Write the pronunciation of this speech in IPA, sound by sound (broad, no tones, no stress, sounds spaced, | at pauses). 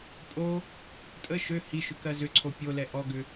pʼ o | tʼ ə ʃ ø h i ʃ ʏ k ɜ z ʏ ǀʰ o pʲ o l ɛ ʔ ɔ ɡ ʏ